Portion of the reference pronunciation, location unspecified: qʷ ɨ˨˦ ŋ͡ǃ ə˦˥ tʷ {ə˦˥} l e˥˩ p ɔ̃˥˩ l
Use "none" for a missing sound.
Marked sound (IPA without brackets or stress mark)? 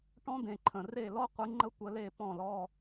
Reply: ə˨˦